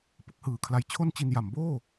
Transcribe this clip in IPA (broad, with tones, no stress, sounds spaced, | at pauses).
p ɯ˥˩ k̚ h ɯː˩˦ kʰ l a˧ j t͡ɕʰ o˥˩ n t͡ɕ i˧ n j a˩˦ m b oː˥˩